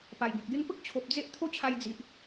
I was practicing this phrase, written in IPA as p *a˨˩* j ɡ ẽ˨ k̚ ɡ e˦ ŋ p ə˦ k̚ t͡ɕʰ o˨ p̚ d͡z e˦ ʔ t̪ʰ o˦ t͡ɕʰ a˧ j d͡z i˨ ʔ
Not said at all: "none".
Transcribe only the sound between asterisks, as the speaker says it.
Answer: a˨˩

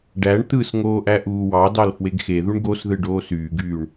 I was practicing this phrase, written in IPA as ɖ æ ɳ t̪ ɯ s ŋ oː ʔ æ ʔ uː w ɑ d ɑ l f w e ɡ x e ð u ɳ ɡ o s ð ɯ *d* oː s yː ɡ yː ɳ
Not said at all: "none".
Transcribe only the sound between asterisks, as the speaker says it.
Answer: ɖ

